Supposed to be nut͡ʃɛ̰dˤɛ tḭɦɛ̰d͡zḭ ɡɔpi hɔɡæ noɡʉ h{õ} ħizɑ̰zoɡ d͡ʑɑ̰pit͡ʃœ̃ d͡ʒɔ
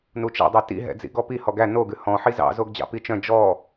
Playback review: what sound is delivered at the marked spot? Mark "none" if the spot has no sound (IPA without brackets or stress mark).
ɔ̃